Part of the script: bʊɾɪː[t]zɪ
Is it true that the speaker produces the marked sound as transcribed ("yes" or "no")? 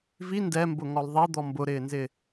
no